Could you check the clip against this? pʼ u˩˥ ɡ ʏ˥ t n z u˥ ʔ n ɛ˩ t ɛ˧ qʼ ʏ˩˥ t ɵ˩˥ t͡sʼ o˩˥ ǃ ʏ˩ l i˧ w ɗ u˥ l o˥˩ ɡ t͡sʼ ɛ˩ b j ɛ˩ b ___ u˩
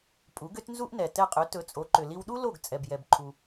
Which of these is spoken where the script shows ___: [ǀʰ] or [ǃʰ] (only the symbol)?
ǃʰ